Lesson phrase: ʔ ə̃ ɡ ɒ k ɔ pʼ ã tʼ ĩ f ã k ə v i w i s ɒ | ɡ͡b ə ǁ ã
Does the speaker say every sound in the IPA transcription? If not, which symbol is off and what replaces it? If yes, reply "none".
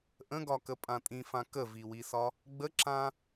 ɔ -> ə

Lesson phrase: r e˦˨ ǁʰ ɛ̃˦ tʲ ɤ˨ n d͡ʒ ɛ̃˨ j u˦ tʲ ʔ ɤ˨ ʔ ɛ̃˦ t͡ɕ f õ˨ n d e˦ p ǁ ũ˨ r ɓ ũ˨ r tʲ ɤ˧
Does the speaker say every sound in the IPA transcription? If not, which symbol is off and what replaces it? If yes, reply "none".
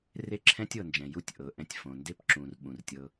t͡ɕ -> tʲ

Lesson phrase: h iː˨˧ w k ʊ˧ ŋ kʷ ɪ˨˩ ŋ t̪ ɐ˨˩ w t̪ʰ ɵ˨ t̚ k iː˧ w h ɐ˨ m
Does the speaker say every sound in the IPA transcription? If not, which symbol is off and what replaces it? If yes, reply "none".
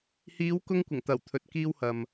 none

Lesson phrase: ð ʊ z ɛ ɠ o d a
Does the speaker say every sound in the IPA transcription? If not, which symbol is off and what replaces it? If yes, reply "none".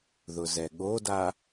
none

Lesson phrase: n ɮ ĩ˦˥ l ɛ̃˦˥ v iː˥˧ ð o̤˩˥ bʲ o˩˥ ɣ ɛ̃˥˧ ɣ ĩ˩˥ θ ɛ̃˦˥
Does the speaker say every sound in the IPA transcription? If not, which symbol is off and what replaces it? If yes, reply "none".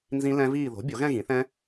ɮ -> z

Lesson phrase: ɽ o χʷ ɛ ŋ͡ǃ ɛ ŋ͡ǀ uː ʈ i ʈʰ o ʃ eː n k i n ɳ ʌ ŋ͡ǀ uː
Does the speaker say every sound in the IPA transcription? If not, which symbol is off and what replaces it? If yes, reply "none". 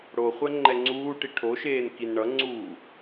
none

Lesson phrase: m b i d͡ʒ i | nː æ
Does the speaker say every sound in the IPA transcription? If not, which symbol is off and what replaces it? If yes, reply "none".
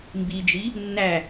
none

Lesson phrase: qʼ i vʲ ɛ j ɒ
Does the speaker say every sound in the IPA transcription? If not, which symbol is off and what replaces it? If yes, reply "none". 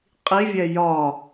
none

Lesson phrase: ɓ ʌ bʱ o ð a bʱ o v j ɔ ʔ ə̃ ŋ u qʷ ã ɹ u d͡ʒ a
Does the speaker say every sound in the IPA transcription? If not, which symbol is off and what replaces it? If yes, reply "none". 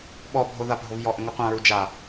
ʌ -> ɔ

